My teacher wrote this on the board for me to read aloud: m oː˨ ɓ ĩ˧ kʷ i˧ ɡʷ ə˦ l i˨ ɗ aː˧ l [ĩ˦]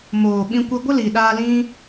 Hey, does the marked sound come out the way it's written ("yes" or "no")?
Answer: yes